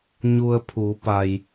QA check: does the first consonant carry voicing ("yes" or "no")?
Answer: yes